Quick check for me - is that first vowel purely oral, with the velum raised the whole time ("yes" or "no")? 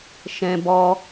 no